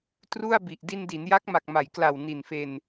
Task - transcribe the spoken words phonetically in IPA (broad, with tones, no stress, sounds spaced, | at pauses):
t r u˥˩ a̯ b i˨˩ ʔ d i˧ n d i˩˦ n j a˦˥ k̚ m a˨˩ k̚ m a˩˦ j k l a˨˩ w n i˨˩ n f e˧ n